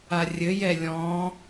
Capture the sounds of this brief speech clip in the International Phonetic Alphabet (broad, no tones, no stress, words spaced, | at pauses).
arʲɘjɛ lʲɔ̃